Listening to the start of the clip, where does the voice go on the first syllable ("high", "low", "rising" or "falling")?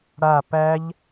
falling